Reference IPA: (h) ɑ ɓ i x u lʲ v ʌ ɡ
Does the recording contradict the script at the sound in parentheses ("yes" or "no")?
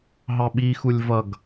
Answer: yes